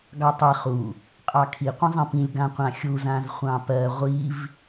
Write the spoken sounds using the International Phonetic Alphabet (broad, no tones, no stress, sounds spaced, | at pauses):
ɡ ɑ tˤ e χ u | qʼ ɑ kʰ i qʷ ẽ zˤ ẽ p ĩ lʲ ɡ ã qʷ ã xʲ u z ã z χʷ ɑ̃ p ɜ ʁʷ i v